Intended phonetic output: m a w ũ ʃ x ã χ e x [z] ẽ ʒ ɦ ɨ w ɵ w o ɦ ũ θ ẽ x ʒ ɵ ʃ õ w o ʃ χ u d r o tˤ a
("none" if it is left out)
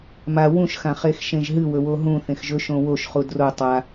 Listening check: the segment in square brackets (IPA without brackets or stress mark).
ʃ